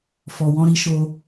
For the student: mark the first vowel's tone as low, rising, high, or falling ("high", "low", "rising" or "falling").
low